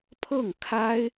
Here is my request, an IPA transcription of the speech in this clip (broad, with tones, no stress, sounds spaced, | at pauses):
pʰ ɤ˥˩ ŋ kʰ a˥ ɪ̯